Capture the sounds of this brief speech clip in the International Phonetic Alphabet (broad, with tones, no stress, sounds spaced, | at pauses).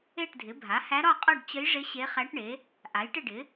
e˥˨ ʈ dʱ ɪ˩˥ bʱ a˩˥ h æ˧˥ ɾ ɒ˥˨ qʼ ɒ˥˨ ɖ t͡ɕ ə˧˥ j ʐ ɪ˧˥ ɕ e˧˥ χ æ˧˥ ʈ ɳ e˩˥ | ʔ a˩˥ j ʈ ɪ˥˨ ɖ ɪ˩˥